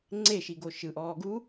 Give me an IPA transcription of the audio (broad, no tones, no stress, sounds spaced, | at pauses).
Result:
ŋ͡ǀ e ʃ i ɡ o ʃ ɯ ʔ ɔː ɡ u